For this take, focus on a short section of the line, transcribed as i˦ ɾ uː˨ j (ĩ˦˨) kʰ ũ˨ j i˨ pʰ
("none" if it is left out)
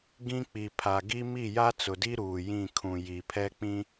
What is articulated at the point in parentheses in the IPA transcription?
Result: ĩ˦˨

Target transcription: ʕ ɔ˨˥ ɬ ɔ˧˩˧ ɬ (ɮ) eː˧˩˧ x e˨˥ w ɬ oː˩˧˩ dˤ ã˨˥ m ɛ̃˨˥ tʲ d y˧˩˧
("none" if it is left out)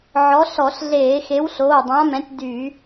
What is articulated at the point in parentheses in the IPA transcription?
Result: ɮ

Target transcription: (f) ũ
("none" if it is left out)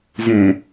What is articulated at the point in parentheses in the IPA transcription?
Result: v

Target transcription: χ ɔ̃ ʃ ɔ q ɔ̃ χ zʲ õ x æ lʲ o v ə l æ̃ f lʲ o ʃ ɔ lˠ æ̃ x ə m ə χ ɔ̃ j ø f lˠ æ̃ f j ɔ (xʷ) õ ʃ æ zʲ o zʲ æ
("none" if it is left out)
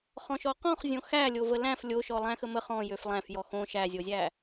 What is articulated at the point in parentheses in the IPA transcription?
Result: x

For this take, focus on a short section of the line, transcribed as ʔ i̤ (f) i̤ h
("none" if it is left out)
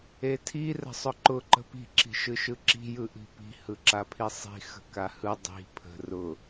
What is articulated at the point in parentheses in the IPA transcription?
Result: p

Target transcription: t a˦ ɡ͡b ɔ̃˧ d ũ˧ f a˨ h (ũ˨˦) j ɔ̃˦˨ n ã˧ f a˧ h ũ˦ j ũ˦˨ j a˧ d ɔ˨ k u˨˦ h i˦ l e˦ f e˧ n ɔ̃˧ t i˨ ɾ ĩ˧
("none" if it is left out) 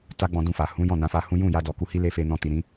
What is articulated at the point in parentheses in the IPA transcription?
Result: ũ˨˦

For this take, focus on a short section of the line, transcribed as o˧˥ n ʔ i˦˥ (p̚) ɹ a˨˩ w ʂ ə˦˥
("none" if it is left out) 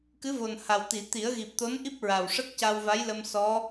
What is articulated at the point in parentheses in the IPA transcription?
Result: p̚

